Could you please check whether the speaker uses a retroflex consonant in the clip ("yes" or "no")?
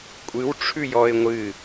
yes